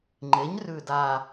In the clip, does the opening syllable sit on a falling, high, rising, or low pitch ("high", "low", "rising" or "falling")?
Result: rising